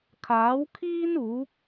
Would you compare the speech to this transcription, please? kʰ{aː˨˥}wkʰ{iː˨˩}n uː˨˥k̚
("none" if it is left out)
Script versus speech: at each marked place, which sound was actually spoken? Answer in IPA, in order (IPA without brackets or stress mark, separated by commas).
aː˨˥, iː˥